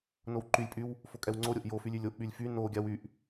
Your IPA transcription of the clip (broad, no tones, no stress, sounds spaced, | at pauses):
n o w ǃ y lʲ pʼ y w | f o kʼ ɛ w ŋ͡ǀ o ɾʲ o ʔ j o f y lʲ y lʲ o ʔ ɓ y lʲ f y n o ɡʲ a w y ʔ